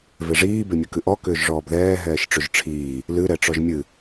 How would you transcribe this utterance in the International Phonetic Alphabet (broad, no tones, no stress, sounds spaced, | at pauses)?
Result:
v e ʐ iː b e mʲ ɵ k ɨ ʔ ɔ k ʏː ʒ ʐ ɔː b ð ɛː ɦ ɛː ʃ ʈ͡ʂ ɵ ʒ ʈ͡ʂʰ iː | l ɨ ɾ ɛ ʈ͡ʂ ɔ ʒ mʲ ɨ